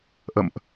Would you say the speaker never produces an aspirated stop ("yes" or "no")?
yes